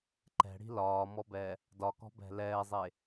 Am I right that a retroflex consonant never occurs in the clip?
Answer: no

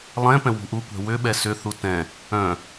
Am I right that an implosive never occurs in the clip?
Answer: no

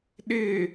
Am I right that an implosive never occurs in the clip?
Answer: no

